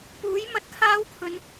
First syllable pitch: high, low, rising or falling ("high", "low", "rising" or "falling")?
rising